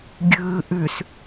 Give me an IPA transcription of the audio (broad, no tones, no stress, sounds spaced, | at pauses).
ɡʲ ɯː ʔ ʉ s